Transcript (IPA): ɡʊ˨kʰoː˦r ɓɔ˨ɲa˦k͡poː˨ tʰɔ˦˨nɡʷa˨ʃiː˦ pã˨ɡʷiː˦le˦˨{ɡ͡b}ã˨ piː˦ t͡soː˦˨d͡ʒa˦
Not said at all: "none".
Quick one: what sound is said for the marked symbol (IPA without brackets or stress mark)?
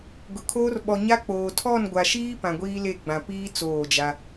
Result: ɡ͡b